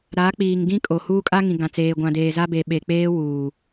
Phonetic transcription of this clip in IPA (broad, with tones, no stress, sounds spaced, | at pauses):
ɾ a˨˦ k͡p iː˨ ŋ ɡ ĩ˦ kʼ o˨ h uː˦ kʼ a˦ ŋ ĩ˨ ɡ ã˨ t͡s eː˨ ɡʷ ã˨ d eː˨ z a˦ b e˨ ɓ e˨ k͡p eː˦ w uː˨